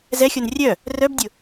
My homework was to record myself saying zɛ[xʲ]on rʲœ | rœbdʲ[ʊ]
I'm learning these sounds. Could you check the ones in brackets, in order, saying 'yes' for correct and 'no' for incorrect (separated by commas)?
yes, yes